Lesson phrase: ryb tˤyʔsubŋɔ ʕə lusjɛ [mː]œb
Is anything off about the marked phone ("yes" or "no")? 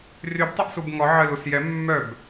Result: no